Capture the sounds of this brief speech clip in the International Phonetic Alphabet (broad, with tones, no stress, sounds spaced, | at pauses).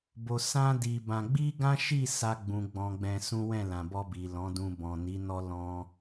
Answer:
b o˨ s ã˧ d i˧ b ã˧ ɡ͡b i˦ ɡ ã˦ ʃ i˦˨ s a˧ ɡ͡b ũ˨ ɡ͡b ɔ̃˨ ɡ͡b ɛ̃˧ s ũ˦ w ɛ̃˦˨ l ã˨ b ɔ˧ b i˨ l ɔ̃˨˦ d ũ˧ b ɔ̃˨ n i˨˦ n ɔ˦ l ɔ̃˦